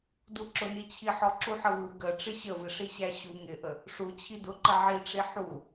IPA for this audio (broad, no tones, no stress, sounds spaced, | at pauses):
d u ǁ ʊ n i t͡ɕʰ i ħ ɔ ǁ u ħ ə v u ɡ ə ʈ͡ʂ ɪ ɕ ə v ɪ ʂ i ɕ æ ɕ u ŋ ɪ ʔ ə | ʂ u t͡ɕʰ i d ʊ ǃ ə ʕ i ʈ͡ʂ i ħ u